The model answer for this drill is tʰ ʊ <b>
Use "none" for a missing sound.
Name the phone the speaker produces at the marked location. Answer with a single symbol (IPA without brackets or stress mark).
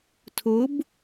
b